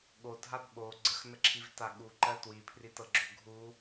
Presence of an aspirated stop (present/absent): present